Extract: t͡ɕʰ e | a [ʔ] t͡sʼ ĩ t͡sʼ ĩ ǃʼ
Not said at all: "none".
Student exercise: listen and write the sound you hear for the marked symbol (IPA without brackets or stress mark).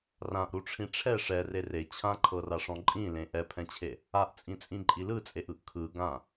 ʔ